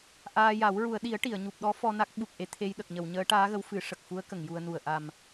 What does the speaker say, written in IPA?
ʔ aː˧ j a˨˩˦ w ɹ u˨˩˨ ə̯ ɗ i˨˩˦ ə̯ ʈ i˨˩˨ ə̯ ɲ u˨˩ p̚ ɗ ɔ˧˥ f ɔ˧ n a˦˥ k̚ ɓ u˨˩ k̚ ʔ e˧ t̪ʰ e˧ j ɗ ə˨˩ k̚ ɲ ə˨˩˨ w ɲ əː˧˥ ʈ aː˧˥ ɣ ə˧˥ w f ɨ˨˩˦ ʂ ə˨˩ k̚ f u˧˥ ə̯ k ə˨˩˨ ŋ j u˧ ə̯ n u˨˩ ə̯ ʔ a˨˩ m

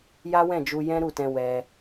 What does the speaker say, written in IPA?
j a˦ w ɛ̃˦˨ d͡ʒ u˧ j ɛ̃˦ ɾ u˦˨ t ɛ̃˧ w ɛ˧

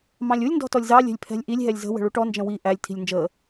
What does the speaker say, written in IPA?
m ɑ̃ lʲ u lʲ n d ɔ̤ t ɔ lʲ z ɑ lʲ ɛ̤ lʲ pʰ ɛ̤ lʲ ʔ i lʲ ɦ ɛ lʲ z ə̤ w ə̤ ɭ u ʈ ɔ n d͡ʒ ə̃ w i ʔ æ lʲ tʰ i̤ lʲ n d͡ʒ əː

